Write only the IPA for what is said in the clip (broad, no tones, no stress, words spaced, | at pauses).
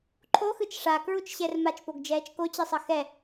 ǃʰoxɯt͡ʃ ʂakɹut͡ʃɕɛr mat͡ʃpoɡd͡ʒɛːt͡ʃ kot͡ɕisˤʌ xɛ